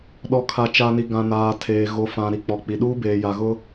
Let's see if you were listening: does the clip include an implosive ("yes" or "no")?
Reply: yes